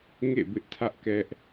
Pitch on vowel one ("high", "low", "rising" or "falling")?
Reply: falling